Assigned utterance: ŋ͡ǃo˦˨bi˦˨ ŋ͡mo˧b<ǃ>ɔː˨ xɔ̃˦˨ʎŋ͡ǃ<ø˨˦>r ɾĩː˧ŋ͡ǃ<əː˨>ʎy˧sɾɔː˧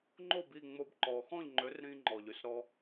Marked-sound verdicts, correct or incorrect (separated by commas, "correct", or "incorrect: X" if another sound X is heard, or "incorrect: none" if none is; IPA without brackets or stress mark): correct, correct, incorrect: ɔː˨